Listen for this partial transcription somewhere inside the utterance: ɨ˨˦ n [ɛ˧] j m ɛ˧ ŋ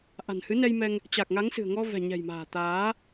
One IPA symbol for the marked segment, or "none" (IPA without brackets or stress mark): ɛ˧